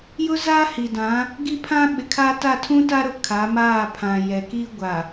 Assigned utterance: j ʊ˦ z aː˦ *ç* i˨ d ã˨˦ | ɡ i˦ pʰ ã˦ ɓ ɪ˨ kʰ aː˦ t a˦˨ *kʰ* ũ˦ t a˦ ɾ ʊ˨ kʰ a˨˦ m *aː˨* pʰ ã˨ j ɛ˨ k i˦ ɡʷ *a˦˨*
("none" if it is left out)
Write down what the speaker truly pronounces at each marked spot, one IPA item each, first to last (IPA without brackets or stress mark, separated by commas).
h, tʰ, aː˦˨, a˨